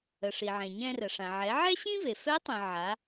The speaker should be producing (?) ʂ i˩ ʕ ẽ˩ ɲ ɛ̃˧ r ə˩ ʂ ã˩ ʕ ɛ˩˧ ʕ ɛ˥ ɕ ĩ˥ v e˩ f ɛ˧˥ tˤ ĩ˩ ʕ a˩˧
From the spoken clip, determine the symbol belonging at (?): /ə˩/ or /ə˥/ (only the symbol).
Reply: ə˩